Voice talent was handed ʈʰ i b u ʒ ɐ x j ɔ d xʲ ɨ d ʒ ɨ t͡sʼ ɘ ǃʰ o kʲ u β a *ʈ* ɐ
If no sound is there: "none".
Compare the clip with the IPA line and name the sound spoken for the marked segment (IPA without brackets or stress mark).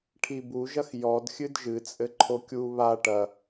ʈ